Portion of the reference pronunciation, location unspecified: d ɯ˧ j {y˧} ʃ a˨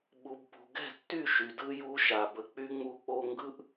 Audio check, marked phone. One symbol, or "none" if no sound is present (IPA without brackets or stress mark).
u˧